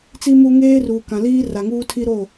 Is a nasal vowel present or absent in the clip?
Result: present